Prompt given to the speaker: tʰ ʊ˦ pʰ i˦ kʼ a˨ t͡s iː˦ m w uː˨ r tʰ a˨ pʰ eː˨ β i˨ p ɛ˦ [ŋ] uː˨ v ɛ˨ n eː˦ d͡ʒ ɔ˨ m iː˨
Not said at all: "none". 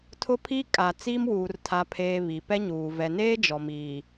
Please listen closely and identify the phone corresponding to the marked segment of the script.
ɲ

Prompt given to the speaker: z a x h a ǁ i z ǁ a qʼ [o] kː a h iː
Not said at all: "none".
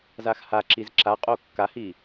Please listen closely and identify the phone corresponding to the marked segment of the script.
o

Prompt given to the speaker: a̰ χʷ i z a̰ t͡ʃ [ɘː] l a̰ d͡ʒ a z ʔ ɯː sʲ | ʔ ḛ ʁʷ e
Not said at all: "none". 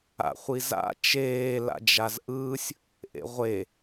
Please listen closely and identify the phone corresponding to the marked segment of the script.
eː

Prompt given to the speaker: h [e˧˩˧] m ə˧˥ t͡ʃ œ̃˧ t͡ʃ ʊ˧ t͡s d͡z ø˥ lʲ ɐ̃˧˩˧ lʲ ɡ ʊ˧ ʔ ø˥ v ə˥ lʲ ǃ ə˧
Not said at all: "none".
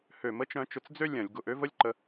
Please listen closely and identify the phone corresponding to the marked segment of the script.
ø˧˩˧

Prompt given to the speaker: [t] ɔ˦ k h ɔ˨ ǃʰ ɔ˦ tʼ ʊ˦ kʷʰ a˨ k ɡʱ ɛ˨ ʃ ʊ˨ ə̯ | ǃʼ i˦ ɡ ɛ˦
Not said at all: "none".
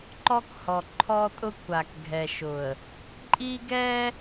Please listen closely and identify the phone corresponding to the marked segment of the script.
ǃ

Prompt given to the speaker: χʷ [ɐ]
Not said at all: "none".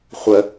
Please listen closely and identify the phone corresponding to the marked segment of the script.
ə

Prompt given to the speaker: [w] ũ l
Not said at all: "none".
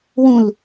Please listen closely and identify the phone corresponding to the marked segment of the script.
w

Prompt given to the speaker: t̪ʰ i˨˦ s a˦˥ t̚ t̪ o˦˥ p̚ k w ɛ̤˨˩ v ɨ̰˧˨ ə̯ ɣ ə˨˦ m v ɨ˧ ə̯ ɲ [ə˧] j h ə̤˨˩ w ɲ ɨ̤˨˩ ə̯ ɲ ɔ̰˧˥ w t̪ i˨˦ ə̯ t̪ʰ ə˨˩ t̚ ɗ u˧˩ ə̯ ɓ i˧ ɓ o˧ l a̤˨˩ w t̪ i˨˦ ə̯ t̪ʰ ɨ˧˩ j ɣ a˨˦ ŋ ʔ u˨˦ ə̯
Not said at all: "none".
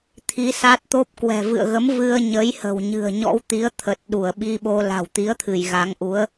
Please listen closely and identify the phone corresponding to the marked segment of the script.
ə˨˦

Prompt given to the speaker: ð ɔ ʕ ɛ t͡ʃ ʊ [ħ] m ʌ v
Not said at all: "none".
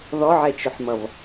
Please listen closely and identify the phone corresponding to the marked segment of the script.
ħ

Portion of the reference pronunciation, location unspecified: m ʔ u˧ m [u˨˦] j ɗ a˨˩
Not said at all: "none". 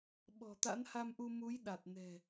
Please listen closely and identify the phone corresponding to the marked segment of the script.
u˨˦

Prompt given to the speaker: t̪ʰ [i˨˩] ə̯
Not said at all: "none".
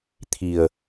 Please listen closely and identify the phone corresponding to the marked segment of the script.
i˨˩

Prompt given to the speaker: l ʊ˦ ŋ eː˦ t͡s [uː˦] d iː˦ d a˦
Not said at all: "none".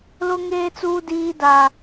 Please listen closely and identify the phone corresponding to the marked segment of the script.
uː˦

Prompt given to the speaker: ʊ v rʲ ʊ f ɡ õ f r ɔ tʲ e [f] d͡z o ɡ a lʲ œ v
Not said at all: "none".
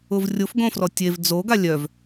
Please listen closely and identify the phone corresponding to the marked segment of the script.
v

